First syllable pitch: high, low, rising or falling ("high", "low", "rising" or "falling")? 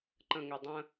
low